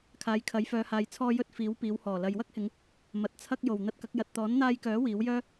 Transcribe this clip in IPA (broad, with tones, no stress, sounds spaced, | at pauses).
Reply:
kʰ aː˨˧ j kʰ ɐ˨˥ j f œː˨˧ h aː˨ j t͡sʰ ɔː˧ j ɵ˧ t̚ f iː˨˥ w p iː˨˧ w h ɔː˨˩ l ɐ˨ j w ɐ˥ k̚ h ɪ˨˧ ŋ | m ɐ˨ t̚ t͡sʰ ɐ˧ k̚ j o˨˩ w n̪ ɐ˧ t̚ k ɐ˨˥ k̚ j ɐ˨ t̚ t̪ ɔː˨˥ n n̪ aː˧ j k œː˨˥ w iː˨˥ w j œː˥